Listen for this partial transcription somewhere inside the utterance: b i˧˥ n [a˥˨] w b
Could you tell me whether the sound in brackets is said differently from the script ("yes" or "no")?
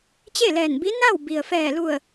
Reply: no